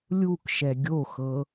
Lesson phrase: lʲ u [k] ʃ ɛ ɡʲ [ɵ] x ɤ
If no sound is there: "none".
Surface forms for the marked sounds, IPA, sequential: k, o

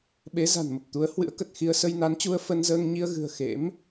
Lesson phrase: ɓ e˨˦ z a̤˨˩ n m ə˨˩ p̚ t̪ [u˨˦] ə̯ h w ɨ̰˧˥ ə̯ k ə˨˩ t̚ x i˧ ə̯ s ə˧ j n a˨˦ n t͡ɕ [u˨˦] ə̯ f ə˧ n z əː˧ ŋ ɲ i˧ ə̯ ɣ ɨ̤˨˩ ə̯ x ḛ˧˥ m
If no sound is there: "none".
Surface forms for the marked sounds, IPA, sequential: u˨˦, u˧

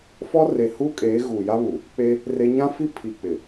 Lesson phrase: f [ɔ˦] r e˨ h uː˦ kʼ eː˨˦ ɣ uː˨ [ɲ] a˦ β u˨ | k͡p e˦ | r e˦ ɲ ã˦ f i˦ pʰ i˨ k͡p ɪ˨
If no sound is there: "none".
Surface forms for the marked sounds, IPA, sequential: ɔ˦, j

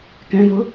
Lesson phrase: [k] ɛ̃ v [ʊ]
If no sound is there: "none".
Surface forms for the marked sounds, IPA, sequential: k, ʊ

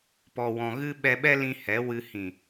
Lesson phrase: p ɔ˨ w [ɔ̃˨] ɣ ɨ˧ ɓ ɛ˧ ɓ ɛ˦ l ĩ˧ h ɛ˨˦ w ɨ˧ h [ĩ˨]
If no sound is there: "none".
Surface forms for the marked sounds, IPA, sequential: ɔ̃˨, ĩ˨

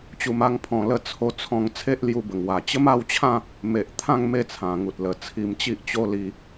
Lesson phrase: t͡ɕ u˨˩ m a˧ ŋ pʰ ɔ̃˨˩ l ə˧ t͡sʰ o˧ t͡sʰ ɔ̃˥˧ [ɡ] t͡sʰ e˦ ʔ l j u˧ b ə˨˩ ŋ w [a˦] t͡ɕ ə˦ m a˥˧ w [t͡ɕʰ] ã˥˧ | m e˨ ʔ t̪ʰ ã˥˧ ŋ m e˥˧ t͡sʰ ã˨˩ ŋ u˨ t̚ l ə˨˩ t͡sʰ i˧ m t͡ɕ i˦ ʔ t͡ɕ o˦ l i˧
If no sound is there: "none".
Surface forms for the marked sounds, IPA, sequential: ŋ, a˨˩, t͡ɕʰ

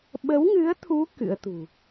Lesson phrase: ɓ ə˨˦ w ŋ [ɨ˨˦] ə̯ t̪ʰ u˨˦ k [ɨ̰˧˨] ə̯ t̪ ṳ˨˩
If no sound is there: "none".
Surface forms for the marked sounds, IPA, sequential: ɨ˨˦, ɨ̰˧˥

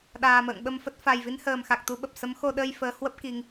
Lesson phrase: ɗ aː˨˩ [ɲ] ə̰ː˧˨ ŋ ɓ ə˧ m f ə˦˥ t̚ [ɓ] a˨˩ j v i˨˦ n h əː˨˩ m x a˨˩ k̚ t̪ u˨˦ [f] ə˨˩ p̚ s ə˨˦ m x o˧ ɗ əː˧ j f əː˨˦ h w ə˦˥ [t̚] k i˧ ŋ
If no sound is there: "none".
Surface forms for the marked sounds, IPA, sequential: m, f, ɓ, p̚

